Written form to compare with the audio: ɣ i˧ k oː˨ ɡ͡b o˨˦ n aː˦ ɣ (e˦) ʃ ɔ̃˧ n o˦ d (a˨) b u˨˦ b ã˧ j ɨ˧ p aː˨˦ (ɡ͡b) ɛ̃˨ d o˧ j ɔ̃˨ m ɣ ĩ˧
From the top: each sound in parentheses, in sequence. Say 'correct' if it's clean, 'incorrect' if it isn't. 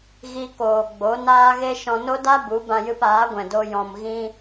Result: correct, incorrect: a˦, incorrect: ɡʷ

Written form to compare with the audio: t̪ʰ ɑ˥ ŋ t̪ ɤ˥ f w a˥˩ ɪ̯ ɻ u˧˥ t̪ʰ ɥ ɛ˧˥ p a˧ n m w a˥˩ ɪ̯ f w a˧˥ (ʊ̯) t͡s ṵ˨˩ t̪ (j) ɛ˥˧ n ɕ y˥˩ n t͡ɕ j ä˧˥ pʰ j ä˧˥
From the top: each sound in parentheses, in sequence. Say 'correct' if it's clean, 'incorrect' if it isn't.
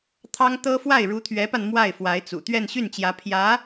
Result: incorrect: ɪ̯, incorrect: ɥ

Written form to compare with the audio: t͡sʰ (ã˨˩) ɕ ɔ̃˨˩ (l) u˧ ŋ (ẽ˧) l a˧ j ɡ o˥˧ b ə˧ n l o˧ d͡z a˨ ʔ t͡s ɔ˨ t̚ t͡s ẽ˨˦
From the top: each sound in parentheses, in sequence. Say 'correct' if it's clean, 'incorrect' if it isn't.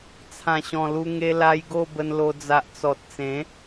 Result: correct, correct, incorrect: e˧

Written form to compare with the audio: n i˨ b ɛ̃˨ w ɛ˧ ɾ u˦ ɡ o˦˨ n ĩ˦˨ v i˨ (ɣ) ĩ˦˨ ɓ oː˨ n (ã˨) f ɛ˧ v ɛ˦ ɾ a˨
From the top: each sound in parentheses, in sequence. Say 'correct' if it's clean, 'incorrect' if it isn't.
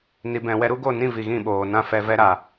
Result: correct, incorrect: ã˦

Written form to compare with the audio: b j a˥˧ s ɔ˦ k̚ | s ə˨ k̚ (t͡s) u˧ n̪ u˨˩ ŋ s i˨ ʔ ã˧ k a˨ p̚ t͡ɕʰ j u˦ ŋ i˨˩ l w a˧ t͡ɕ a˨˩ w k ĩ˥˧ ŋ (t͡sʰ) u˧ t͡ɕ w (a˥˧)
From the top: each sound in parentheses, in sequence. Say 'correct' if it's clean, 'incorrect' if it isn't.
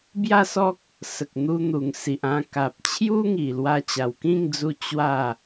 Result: incorrect: n̪, incorrect: d͡z, correct

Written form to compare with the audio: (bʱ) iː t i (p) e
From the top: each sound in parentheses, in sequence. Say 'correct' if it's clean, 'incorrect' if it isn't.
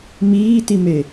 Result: incorrect: m, incorrect: m

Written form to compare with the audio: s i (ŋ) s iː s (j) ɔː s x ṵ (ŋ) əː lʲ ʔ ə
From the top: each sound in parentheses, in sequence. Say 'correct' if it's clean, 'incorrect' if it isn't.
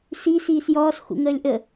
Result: incorrect: none, correct, correct

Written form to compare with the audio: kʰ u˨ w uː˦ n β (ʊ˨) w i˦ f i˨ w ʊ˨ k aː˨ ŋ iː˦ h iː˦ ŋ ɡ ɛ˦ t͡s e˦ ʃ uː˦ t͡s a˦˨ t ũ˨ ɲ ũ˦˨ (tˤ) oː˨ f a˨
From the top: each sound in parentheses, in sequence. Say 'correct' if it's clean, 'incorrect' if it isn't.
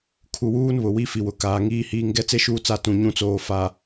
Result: correct, incorrect: t͡s

